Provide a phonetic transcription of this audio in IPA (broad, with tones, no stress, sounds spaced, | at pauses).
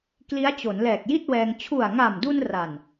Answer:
k l i˦˥ a̯ t͡ɕ o˩˦ n l ɛː˨˩ k̚ j i˥˩ t̚ w ɛː˧ ŋ t͡ɕʰ u˨˩ a̯ ŋ a˨˩ m d u˧ n r a˨˩ n